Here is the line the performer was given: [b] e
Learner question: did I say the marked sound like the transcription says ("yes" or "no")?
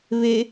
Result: no